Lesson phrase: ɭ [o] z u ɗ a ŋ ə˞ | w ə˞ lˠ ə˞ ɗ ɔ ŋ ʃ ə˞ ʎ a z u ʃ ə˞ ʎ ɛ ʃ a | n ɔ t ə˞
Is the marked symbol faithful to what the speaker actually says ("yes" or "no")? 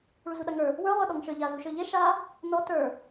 no